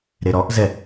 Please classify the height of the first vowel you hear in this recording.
mid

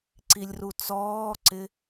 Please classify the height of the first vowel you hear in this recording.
high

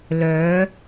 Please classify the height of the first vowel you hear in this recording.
mid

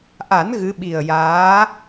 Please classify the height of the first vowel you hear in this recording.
low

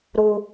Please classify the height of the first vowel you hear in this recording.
high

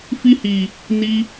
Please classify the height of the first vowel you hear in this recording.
high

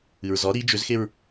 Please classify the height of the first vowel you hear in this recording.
high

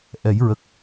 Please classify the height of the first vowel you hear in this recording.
mid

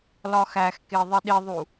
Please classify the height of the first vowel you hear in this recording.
low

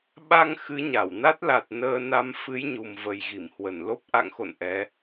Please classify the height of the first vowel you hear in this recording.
low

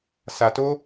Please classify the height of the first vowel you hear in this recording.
low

